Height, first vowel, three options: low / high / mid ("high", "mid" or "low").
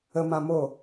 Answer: mid